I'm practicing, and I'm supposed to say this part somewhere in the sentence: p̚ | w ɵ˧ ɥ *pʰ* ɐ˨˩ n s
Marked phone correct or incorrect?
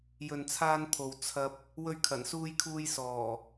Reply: incorrect